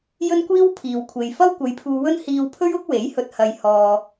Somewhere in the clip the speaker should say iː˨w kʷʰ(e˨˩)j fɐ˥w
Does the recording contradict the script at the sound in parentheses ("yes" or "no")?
yes